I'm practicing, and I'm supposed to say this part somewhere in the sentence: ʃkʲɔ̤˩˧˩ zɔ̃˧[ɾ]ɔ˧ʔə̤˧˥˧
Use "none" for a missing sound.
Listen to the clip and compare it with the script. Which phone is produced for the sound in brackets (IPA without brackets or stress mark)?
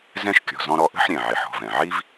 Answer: ɾ